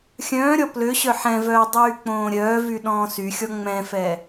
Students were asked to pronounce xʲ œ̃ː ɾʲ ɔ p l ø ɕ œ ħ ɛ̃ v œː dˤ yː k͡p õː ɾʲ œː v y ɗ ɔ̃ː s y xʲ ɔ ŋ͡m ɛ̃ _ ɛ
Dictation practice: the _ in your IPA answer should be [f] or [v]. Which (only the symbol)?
f